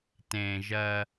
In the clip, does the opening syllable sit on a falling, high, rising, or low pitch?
low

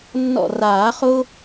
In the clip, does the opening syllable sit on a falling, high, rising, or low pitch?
falling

